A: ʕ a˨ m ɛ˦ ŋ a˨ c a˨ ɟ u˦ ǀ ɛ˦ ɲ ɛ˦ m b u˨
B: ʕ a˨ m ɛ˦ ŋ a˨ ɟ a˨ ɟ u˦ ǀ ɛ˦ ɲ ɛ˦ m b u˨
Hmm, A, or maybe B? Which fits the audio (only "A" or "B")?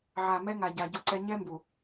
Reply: B